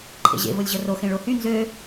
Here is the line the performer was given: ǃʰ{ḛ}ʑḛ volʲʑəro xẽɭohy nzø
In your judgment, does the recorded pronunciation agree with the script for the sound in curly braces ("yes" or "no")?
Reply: yes